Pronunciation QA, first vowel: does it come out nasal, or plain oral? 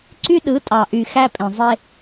oral